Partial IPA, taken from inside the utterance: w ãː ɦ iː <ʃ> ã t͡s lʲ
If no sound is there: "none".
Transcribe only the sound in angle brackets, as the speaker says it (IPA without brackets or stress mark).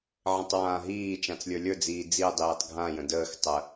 t͡ʃ